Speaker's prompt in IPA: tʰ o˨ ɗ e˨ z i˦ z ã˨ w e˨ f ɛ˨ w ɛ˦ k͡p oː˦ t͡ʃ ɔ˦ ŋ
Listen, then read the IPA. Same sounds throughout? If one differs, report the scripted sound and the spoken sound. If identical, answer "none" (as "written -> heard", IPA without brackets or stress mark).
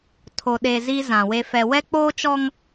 none